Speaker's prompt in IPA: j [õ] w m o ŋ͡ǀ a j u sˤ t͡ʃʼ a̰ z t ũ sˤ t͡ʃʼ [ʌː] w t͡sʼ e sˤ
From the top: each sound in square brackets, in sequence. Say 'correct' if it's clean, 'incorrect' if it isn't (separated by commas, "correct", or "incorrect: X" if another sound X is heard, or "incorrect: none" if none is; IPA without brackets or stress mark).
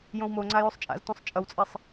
correct, incorrect: ʌ